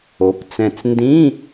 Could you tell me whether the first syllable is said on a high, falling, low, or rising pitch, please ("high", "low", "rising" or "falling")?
rising